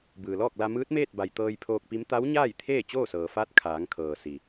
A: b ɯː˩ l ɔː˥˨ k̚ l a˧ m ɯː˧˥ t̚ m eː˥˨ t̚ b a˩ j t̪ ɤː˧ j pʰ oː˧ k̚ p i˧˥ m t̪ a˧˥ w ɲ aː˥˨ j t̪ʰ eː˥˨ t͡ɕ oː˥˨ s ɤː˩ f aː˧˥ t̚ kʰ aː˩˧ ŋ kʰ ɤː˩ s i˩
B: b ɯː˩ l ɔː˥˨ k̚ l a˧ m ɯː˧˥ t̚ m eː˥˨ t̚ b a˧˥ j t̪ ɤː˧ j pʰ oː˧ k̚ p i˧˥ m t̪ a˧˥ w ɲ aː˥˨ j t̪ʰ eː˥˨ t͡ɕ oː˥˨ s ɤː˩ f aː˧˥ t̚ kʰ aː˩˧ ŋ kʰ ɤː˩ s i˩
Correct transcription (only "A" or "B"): A